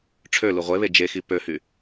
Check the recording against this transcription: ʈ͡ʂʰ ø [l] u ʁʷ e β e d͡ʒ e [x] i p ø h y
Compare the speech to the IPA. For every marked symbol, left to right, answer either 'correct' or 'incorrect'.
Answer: correct, correct

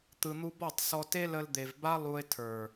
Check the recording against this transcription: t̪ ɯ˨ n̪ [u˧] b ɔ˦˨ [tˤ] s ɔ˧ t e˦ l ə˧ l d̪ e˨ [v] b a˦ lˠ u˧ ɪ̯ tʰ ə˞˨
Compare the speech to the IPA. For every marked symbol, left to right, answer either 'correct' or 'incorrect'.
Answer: correct, correct, correct

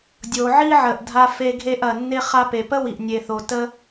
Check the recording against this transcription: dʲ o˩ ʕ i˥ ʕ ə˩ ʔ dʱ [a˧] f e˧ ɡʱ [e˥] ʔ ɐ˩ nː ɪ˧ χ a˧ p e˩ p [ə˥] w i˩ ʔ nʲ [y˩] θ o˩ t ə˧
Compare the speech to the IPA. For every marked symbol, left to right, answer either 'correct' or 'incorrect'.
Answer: correct, incorrect, correct, incorrect

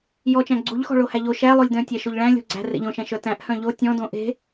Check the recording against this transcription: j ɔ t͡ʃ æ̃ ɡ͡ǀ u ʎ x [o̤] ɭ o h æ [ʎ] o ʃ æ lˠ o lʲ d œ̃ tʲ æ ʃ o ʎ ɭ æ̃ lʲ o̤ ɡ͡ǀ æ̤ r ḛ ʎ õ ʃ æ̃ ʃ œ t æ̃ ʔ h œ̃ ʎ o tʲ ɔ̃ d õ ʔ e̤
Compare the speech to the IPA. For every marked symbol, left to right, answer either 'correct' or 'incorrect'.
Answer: incorrect, correct

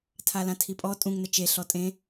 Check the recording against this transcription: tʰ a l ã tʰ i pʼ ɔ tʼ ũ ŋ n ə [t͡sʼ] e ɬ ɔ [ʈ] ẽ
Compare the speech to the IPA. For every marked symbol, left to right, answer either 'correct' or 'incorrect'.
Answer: incorrect, incorrect

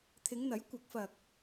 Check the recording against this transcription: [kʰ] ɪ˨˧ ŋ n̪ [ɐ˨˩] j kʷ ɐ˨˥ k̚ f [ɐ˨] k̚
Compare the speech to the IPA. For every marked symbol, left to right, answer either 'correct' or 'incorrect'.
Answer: incorrect, incorrect, correct

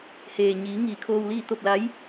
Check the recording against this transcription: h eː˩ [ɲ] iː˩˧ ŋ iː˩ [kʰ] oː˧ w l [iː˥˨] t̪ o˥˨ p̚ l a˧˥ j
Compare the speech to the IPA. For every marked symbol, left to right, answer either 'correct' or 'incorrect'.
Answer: correct, correct, correct

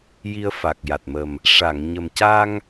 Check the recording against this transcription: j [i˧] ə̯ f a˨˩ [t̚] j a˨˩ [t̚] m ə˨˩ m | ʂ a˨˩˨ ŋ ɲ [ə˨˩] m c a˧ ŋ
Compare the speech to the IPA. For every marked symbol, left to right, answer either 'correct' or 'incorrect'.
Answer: correct, incorrect, correct, correct

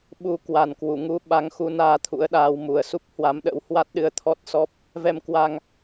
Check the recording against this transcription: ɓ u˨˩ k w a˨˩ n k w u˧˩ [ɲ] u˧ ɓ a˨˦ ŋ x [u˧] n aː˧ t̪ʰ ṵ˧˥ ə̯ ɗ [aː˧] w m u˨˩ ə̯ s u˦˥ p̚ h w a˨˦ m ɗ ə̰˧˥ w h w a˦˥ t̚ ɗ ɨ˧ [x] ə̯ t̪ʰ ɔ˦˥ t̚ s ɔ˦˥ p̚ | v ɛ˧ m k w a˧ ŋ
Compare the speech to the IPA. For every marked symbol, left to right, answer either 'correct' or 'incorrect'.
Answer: incorrect, incorrect, incorrect, incorrect

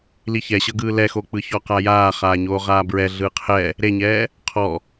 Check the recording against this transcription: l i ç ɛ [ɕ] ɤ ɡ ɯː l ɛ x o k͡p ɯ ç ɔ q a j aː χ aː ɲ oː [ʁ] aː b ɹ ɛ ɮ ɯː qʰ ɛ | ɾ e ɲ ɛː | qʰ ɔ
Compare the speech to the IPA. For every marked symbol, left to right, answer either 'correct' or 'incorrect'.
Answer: correct, correct

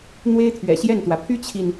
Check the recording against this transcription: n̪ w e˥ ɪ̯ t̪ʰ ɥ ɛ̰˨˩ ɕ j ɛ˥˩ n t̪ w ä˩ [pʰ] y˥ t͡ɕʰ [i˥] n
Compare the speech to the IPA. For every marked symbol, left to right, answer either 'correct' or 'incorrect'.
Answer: correct, incorrect

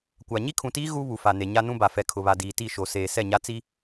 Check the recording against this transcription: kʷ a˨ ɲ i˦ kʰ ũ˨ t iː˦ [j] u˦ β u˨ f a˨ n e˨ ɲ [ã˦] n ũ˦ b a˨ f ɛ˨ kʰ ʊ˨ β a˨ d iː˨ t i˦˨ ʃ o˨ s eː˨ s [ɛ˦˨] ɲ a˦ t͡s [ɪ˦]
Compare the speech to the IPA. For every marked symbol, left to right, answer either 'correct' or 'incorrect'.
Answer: incorrect, incorrect, correct, incorrect

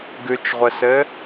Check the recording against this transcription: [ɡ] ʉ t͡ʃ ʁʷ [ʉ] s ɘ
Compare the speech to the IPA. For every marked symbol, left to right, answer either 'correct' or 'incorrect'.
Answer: correct, incorrect

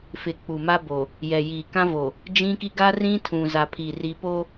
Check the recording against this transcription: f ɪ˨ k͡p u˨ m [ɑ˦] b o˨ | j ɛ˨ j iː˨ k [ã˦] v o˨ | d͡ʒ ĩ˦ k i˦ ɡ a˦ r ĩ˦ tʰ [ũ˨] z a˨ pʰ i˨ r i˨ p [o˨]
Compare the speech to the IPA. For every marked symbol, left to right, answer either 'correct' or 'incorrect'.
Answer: incorrect, correct, correct, incorrect

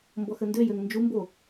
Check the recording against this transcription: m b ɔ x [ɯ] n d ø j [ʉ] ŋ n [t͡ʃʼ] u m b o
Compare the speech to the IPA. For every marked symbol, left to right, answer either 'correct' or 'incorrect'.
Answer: incorrect, incorrect, incorrect

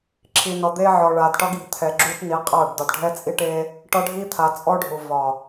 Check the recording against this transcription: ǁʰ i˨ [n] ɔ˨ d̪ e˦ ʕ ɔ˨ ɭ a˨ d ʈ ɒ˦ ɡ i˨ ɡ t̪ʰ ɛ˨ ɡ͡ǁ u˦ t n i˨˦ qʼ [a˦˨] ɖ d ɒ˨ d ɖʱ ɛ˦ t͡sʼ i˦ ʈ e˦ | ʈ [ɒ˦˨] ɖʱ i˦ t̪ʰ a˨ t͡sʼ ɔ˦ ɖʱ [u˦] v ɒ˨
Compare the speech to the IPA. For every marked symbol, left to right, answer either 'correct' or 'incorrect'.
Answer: correct, correct, incorrect, incorrect

